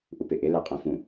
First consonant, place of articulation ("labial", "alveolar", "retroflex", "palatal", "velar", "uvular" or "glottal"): glottal